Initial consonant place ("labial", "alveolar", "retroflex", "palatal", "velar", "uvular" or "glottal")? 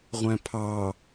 uvular